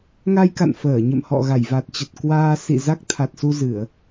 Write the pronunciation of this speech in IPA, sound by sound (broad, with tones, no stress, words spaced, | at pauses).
ŋa˧jka̰˧˨n fəː˧˩ɲə̰˧˨mhɔ̰˧˨ ɣa˧˩jva˨˩t̚t͡ɕə˨˩t̚ kwaː˧ sḭ˧˨ za˦˥k̚t̪ʰa˨˩t̚su˧zɨ˧˩˨ə̯